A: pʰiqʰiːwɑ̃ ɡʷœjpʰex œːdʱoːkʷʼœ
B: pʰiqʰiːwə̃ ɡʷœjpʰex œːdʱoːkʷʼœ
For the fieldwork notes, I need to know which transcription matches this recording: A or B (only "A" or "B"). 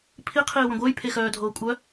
B